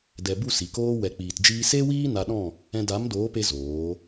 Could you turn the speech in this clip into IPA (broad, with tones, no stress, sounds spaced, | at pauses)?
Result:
d ɛ˨ b u˦˨ s i˨ k oː˦ w ɛ˨ k͡p iː˨ t d͡ʒ iː˧ s e˦ w iː˦ n a˧ ɗ ɔ̃˦˨ | ɛ̃˧ d a˨˦ m d oː˨˦ p e˧ z oː˨˦